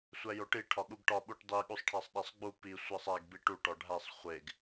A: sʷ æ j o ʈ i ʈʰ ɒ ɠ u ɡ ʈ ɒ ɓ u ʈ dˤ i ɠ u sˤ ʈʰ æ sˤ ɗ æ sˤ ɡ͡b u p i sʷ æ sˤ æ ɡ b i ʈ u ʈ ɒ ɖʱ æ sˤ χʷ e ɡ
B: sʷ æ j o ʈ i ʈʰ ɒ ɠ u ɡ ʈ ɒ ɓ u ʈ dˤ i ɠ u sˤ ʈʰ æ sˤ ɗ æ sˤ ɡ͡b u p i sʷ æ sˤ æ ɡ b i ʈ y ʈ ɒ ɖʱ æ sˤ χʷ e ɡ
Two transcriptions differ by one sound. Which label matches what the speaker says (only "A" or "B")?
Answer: A